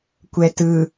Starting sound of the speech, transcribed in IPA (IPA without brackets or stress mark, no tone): kʷ